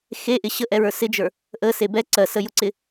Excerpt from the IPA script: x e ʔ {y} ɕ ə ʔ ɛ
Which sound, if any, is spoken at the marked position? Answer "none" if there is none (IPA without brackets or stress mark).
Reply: ɪ